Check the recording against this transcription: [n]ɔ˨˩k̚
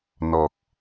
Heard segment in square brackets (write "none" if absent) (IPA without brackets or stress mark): n